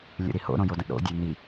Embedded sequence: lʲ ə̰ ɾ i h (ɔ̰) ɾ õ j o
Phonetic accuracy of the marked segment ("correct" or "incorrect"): incorrect